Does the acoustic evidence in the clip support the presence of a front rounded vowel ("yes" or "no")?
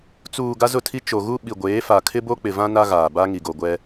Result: no